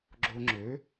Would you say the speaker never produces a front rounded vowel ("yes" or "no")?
no